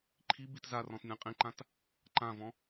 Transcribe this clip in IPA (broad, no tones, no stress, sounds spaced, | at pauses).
ǃʰ i b i t z a r ɔ̃ t nʲ ã qʼ ĩ ǃ ã t | ǃ ã v ɔ̃